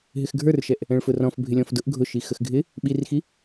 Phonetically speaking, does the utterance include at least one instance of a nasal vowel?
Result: yes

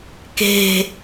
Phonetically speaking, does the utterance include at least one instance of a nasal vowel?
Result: no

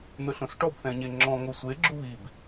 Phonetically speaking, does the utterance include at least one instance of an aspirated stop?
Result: no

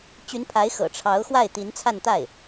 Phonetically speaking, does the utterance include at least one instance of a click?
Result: no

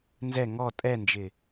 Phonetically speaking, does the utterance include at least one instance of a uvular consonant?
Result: no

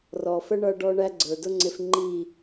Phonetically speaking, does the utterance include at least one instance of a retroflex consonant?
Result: yes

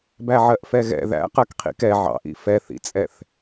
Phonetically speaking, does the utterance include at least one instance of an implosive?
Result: no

